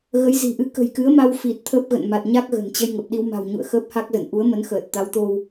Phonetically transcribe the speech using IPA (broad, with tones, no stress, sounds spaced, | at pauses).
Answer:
ɣ ə˨˦ j z i̤˨˩ ʔ ɨ˧ k ə̤˨˩ j k ɨ˨˦ ə̯ m a˧ w f i˨˩ t̚ t̪ʰ ə˦˥ p̚ ɣ ə̰˧˨ n m a˨˩ t̚ ɲ a˦˥ k̚ ɣ ə̤˨˩ n t͡ɕ ə˧ j ŋ ə˨˩ p̚ ɗ i˧ w m a̤˨˩ w ɲ ṵ˧˨ ə̯ x əː˦˥ p̚ h a˦˥ k̚ z ə˧˩ n ʔ u˨˦ ə̯ m ə˨˦ n x əː˨˩ t̚ t̪ a˨˦ w t̪ o˧ w